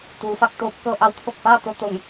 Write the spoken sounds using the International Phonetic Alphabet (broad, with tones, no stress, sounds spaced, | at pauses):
t̪ uː˩˧ f a˧ k̚ t̪ oː˧˥ p̚ k ɤː˧ ʔ a˧˥ w t̪ʰ o˧˩ k̚ f aː˥˨ t̪ o˥˨ t̪ o˧˩ ŋ